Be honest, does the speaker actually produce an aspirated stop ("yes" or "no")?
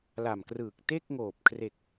yes